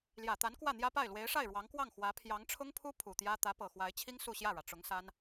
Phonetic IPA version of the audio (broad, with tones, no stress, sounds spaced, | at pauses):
l j ä˨˩ t̪ a˧˥ n k w ä˥˩ n̪ j ä˥ p a˥˩ ɪ̯ l w e˧˥ ɪ̯ ʂ a˥˩ ɪ̯ ɻ w ɑ˧˥ ŋ k w ɑ˥˩ ŋ x w ä˧˥ pʰ j ɑ˧˥ ŋ ʈ͡ʂʰ ʊ˥ ŋ pʰ u˥ pʰ u˨˩ t̪ j ä˥ t̪ ä˧˥ p ɤ˨˩ x w a˧˥ ɪ̯ t͡ɕʰ i˥ ŋ s u˥˧ ɕ j ä˥˩ ɻ ä˩ ʈ͡ʂ ʊ˧˥ ŋ s a˥ n